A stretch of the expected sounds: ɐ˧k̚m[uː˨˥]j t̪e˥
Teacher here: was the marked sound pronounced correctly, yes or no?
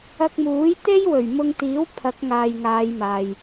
yes